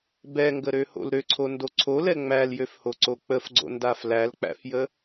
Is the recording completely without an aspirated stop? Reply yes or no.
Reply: no